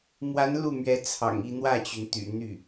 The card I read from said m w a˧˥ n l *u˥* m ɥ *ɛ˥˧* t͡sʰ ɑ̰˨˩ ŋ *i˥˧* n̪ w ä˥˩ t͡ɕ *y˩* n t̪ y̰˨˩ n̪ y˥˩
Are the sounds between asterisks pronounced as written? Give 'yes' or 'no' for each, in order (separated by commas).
no, no, yes, yes